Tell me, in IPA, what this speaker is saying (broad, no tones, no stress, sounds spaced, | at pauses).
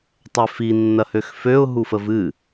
tˤ ɛ f i nː ɐ h ø x f ø ʊ̯ ɦ u f ə v ɨ